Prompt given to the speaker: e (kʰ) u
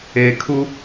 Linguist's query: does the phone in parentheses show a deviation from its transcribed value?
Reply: no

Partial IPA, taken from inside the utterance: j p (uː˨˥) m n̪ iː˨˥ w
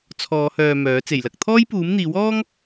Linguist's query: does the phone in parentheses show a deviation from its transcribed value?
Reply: no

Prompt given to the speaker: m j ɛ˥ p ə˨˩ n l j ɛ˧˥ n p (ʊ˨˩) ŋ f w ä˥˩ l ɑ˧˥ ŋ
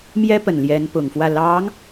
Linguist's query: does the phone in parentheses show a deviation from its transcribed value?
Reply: no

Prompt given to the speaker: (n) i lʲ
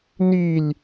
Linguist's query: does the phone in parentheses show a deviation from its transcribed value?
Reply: no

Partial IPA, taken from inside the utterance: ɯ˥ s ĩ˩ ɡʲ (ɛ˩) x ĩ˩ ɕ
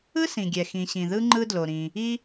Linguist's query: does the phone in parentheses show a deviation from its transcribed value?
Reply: no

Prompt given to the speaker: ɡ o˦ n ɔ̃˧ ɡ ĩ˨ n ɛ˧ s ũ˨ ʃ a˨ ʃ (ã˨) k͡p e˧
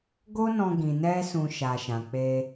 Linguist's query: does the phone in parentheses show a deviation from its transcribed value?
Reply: no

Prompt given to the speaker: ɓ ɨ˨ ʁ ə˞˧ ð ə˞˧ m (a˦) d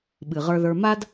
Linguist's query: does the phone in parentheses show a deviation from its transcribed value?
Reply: no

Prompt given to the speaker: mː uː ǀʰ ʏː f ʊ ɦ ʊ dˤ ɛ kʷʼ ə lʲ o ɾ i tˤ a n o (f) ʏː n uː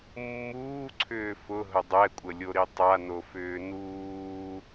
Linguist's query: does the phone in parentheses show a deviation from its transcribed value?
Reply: no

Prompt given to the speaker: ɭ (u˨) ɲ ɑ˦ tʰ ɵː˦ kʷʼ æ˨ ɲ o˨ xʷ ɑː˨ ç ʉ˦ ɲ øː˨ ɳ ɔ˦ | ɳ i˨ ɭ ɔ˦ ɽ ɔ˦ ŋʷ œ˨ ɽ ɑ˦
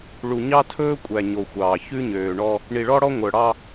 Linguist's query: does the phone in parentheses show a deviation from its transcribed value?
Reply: no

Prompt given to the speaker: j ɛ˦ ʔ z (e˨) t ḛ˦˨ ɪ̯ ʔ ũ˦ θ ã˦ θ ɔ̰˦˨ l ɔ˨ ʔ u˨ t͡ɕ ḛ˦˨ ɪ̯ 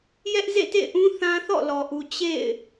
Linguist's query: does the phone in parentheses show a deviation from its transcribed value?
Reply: yes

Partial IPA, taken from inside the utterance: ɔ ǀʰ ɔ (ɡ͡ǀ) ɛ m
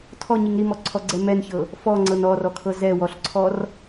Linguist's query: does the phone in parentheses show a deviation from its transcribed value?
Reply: no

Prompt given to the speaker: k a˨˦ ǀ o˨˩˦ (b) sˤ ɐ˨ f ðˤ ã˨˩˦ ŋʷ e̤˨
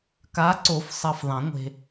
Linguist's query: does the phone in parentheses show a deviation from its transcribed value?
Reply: yes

